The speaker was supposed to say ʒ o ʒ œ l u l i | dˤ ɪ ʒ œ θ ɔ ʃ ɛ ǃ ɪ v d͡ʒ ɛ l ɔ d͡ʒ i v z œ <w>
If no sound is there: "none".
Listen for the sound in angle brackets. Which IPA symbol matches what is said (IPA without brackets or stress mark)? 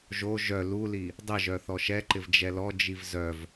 v